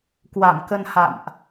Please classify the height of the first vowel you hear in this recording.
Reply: low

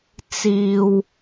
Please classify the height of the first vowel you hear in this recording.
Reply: high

